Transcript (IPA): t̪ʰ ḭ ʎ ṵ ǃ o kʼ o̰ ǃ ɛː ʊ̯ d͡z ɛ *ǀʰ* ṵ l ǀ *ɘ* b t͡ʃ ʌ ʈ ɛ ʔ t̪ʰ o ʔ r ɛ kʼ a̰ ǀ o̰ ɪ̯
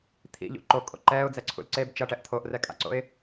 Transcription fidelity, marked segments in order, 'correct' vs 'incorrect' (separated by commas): correct, incorrect